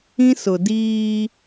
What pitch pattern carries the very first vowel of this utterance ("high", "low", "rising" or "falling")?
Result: high